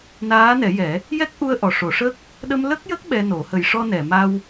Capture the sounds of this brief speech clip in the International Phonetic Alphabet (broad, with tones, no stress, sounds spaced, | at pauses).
n aː˧˥ n ɛ˨˩˦ j ɛ˨˩˦ | j ɛ˦˥ k̚ ʔ u˧ ə̯ ʔ ɔ˨˩ ʂ o˨˩˦ ʂ ə˦˥ k̚ | ɗ ə˧ m l ə˦˥ k̚ j ə˦˥ k̚ ɓ ɛ˧ n o˨˩˦ h ə˨˩ j ʂ ɔ˧ n ɛ˨˩˨ m a˧ w